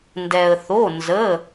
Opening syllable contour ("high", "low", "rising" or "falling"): low